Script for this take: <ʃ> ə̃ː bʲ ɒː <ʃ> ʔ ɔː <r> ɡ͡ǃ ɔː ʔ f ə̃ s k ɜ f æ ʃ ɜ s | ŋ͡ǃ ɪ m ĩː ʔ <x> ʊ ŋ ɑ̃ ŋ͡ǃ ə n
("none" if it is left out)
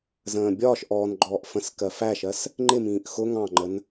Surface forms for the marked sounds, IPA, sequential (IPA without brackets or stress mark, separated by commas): z, ʃ, n, x